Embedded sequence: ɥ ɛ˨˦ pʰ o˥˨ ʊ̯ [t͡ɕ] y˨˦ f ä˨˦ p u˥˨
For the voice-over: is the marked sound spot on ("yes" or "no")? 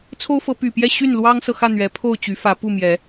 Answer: yes